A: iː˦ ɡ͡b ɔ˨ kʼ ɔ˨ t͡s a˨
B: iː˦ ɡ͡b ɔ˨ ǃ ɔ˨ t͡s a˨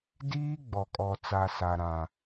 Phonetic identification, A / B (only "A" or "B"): A